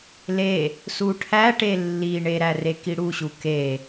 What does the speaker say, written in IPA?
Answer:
le | suʈʰæʈe lːiɳeɾæ rekiɽuɕu ke

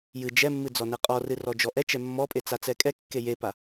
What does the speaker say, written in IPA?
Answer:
jɨ d͡ʒɛmːɨ d͡zɔnɛqʼɔrɨ rɔd͡ʒɔʔɛt͡ʃɛ mːɔpʼe t͡sat͡sɛkʼɛkːe jepa

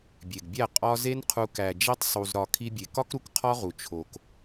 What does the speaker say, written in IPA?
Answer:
bʲe˨ɡbʲæ˦˨ qʼɒ˦ ze˦nqʰu˧ kæ˨d͡ʒi˧tˤ sˤu˧zɾɒ˧ kʰi˧bʲe˨kɒ˦kɾu˨k qʰɒ˦ʁu˨ t͡ʃʰo˨k

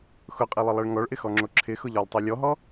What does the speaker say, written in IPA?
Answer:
xʊqʼilˠɪlˠɛɭ ŋɔɭʔɪxɔŋ͡ǁo ǁʰɪxʊʎɔlˠtˤu lʲɔɦɔ

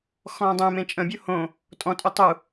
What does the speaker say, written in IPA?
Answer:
xɔ̃ːdˤə̃ːmẽ t͡ʃʼə̃bʲu hõ | tʼɔ̃tʼu tˤu

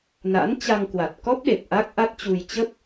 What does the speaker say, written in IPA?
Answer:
na̰˧˥nt͡ɕa˧ŋ kwa˨˩t̚kɔ˦˥p̚ɗe˨˩p̚ ʔa˦˥k̚ ʔa˦˥t̚t͡ɕu˧j t͡ɕə˦˥p̚

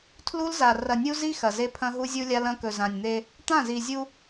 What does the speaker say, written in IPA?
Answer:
tʰlu˦lza˨ rɐ˨nʲu˦zi˦ xɐ˨ze˦pʰɐ̃˦ɦu˦ zʲu˦lʲa˦lɐ̃˦ kɵ˨zã˨nʲn̪e˦ | t̪ã˦˨zi˨zʲu˦

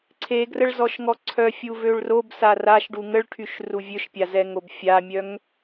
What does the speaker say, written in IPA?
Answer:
ǀʰeɡrəɭzɔʃ ŋɔǀʰœ fʲuvøɭrob saraʃ ɖuŋəɭʈʰyʃ ruvʲøʃpʲazɛ ŋobfʲamʲœŋ

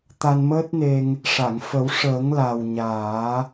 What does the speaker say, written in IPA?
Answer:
t̪a˧nməː˦˥t̚ne˧ŋ | ʂa˨˩˨ŋfə˨˩˦w ʂəː˨˩˦ŋ la˨˩wɲaː˨˩˦

